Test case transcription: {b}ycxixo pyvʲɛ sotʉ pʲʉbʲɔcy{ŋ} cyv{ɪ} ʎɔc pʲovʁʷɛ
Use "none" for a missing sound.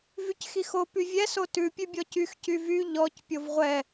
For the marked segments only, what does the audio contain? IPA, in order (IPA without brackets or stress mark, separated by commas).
v, x, y